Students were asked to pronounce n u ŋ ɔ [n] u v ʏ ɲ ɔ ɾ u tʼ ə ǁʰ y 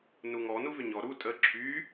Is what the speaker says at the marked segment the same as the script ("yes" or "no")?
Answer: yes